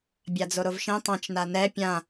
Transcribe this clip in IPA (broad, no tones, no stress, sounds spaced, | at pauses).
bʲ a d͡z o ɾ o v ʃ ɛ̃ tˤ ã t͡ʃ n a n ɛ pʲ ã